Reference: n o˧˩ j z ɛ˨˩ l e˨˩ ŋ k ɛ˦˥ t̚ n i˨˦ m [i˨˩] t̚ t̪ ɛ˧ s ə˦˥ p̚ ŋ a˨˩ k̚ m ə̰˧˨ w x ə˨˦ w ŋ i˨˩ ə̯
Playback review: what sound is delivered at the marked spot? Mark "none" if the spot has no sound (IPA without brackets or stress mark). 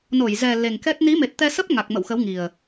e˨˩